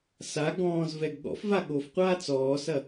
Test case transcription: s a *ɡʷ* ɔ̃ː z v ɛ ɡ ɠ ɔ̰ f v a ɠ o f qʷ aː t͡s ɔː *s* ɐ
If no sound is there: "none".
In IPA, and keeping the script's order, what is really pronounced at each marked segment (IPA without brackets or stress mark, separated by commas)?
ɡ, s